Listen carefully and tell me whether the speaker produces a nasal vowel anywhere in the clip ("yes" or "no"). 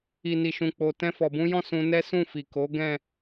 yes